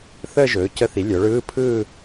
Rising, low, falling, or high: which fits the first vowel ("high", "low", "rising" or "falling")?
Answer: falling